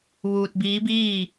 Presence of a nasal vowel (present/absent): absent